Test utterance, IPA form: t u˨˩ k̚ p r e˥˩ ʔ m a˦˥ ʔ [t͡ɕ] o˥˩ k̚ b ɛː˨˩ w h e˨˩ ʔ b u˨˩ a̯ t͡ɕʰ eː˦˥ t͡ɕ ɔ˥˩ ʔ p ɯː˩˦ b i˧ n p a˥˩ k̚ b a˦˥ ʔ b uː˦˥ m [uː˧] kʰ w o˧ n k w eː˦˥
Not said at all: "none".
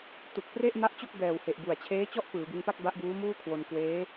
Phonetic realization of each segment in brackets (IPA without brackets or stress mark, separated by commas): t͡ɕ, uː˥˩